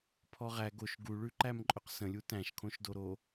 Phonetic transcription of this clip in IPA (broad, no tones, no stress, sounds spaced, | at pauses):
pʰ ɔ ʁ æ ɡ o ʃ ɡ u ɭ ʉ ǃ æ m ǃʼ ɵ q s ə̃ lʲ u t æ̃ ʃ kʰ õ ʃ d o ɾ o